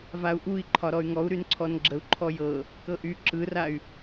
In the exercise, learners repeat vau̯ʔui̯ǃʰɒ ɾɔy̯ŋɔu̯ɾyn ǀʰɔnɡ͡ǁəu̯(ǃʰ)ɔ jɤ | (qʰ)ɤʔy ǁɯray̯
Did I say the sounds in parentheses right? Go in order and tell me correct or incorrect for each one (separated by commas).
correct, incorrect